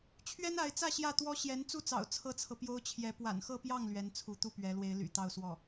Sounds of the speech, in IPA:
t͡ɕʰ ɥ ɛ˥ n a˧˥ ɪ̯ t͡s ä˥˧ ɕ j ä˥˩ t̪ w ɔ˥ ɕ j ɛ˧˥ n t͡s u˥˩ t͡s ɑ̰˨˩ ʊ̯ t͡sʰ ɤ˥ t͡sʰ ɤ˨ p j o˥ ʊ̯ t͡ɕʰ j ɛ˧˥ p w a̰˨˩ n x ɤ˥˧ p j ɑ˥˩ ŋ l ɥ ɛ˧˥ n t͡sʰ u˧˥ t̪ u˥˩ p ɥ ɛ˧˥ l w e˧˥ ɪ̯ l y̰˨˩ t̪ ɑ˥˧ ʊ̯ s w ɔ˥˩

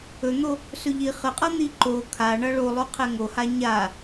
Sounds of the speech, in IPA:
ɵ n̪ o | s ɵ ʎ i χ ə qʼ ʌ n̪ i ǃ o kʰ a ɳ ʌ ɭ o lˠ o qʰ ɛ ŋ o h a ɲ a

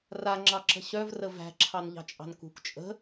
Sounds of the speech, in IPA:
r a ŋ͡ǁ ɑ ǁ ə̤ ɕ œ v r ə v æ̤ ǁʰ ɑ n ʎ ɑ̤ t͡ʃʼ ɑ̤ n k ṳ k t͡ʃʼ ə̤

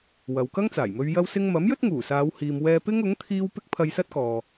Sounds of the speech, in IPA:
w ɐ˨ w k ɐ˥ ŋ t͡s aː˨˩ j m ɵ˧ ɥ j ɐ˥ w s ɪ˥ ŋ m ɐ˨˥ m j ɵ˥ t̚ ŋ uː˨˩ s aː˨˧ w h iː˨ m w ɛː˧ p ɪ˥ ŋ ʊ˨˥ ŋ t̪ʰ iː˥ w p ɪ˥ k̚ pʰ ɐ˧ j s ɐ˥ t̚ k ɔː˨

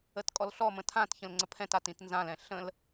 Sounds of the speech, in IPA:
ə t kʼ ɔ l ɬ ɔ m ə̃ tʰ ã t ç ə̃ l ŋ͡ǀ ə pʰ ɛ̃ t a t ĩ t n z ã l ɛ̃ ɬ ə̃ l

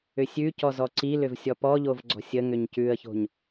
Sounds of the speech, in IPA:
ʏ sʲ ʉ c ɔ z ɔ ǀ i l ʏ v sʲ ɔ p ɔ ʎ o v ɡ͡ǀ ɔ̤ sʲ ə ŋ ʏ ɲ c ʉ ə̯ ç o̤ ɲ

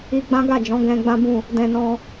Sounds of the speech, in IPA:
i˧ ɡ͡b ã˦ ɡ a˦˨ d͡ʒ ɔ̃˨˦ ɡ ɛ̃˧ ɡ͡b ã˦ b ũ˦˨ | d ɛ̃˧ n ɔ̃˧

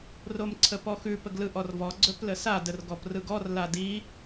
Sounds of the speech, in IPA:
r o m ǀʰ ə p ɔ x ʉ p ə ɡ l ɯ ʔ ɔ r v ɔ ɡ͡ǀ ɵ p l ə s a d ə r ɡ ɔ p r ɯ ɡ ɔ r l a d i

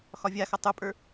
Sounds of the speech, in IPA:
x ɒ vʲ a x ʌ tˤ u pʼ ə˞

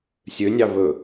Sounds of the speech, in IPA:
sʲ ø nʲ ɑ β ɵ

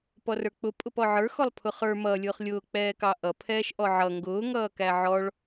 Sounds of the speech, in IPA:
p ɔ r ə˞ k͡p ʊ pʼ ʊ p ɔ ʕ ə˞ x ɔ lˠ pʰ ʊ χ ə˞ m ʌː lʲ ʊː χ lʲ ʊː k͡p ɛː k ɑ ʔ ʌ pʰ ɛː ʃ ʔ ɔ ʕ ʌ ŋ ɡ ʊː ŋ ʌː k æ ʕ ɔ ɭ

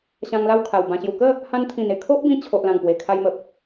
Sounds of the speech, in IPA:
ɕ ã˧ ŋ l a˥˧ w kʰ a˨˩ w b ã˨˩ ɕ j u˨˩ k ə˥˧ | h ã˧ n t̪ʰ ĩ˨˩ n e˨˩ kʰ o˦ ʔ b ĩ˧ t͡ɕʰ o˨ ʔ l ã˨˩ ŋ p w e˨˩ kʰ a˧ j m ə˨ p̚

